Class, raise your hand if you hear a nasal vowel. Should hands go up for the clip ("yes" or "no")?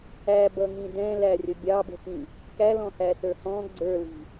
yes